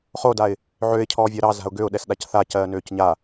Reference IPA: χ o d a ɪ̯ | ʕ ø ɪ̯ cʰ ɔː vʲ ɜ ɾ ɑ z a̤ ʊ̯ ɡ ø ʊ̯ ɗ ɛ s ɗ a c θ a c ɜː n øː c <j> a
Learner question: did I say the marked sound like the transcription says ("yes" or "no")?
no